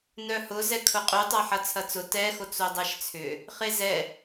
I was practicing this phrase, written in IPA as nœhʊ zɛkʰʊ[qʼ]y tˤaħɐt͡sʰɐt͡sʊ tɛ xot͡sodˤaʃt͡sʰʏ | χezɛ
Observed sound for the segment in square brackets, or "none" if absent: qʼ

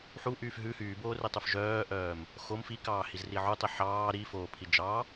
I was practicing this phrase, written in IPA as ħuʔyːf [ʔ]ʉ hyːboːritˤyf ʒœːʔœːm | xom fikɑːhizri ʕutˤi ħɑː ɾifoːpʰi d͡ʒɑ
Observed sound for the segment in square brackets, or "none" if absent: ɦ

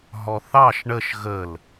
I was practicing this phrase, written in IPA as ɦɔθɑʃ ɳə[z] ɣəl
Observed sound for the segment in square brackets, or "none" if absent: ʃ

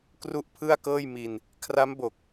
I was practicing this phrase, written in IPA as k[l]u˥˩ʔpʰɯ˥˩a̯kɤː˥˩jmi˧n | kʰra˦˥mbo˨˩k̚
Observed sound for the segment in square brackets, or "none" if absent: r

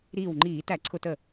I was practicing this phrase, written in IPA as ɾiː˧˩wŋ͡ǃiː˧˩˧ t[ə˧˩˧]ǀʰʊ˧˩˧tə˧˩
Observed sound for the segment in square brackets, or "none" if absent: æ˧˩˧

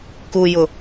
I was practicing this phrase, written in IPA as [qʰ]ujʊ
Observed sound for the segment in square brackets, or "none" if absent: k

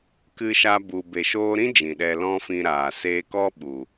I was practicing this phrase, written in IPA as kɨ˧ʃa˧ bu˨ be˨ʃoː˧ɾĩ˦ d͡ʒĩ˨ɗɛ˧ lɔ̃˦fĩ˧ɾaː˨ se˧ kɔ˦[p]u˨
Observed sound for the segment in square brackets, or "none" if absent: ɓ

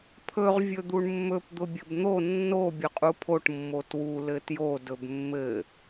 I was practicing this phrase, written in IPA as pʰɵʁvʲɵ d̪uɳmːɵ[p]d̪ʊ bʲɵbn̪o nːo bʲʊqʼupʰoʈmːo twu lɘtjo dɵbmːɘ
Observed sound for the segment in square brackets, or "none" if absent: p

